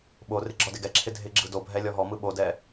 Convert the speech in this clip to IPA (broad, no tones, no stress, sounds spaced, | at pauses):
ɓ o r ɪ ɡ͡ǁ ɔ d ɪ ɡ ɛ ǁʰ ɪ dʱ ɪ ɡ͡ǁ ɯ d o bʱ ɛ lʲ ɔ ɦ ɔ m ɯ ɓ o d ɛ